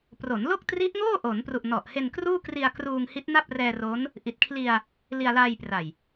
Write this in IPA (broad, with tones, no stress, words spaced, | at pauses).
pro˩˦nlo˥˩k̚tri˦˥ʔŋoː˥˩ ʔo˩˦npru˨˩ʔ nɔ˨˩ʔ he˧nkruː˥˩kri˧a̯ kruː˧ŋhi˦˥t̚na˥˩p̚ rɛː˧ro˦˥n | ʔi˨˩t̚kʰli˧a̯ | li˧a̯laː˧jpra˨˩j